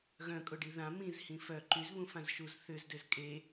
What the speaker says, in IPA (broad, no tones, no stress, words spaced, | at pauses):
ɣœ̃kʼʊɖi ðã mĩzhĩ fœ ǃyzβũfãz ʃuzθʏzdøz kʼe